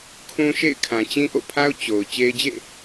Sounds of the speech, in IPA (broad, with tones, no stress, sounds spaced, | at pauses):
kʰ ũ˦ ʃ ḛ˦˨ ɪ̯ kʰ ã˨ t͡ɕ ĩ˦ ʔ o̰˦˨ pʰ a˦ ʊ̯ t͡ɕ o˨ ʊ̯ t͡ɕ e˦ ɪ̯ d͡ʑ ḛ˦˨